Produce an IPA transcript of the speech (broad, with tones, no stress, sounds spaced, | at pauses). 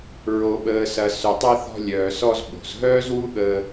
ɹ o˨ ɓ əː˨ s ɐ˨ s ʏ˨ tˤ ɐ˧ θ ɔ̤˧ lʲ œː˨ s ɔ˧ z ɓ o̤˨ z ɦ œː˦ z w u˦ ɠ əː˧